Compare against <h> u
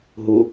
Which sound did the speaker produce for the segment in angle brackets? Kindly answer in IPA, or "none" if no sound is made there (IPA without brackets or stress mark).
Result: ɦ